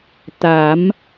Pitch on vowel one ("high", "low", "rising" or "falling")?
rising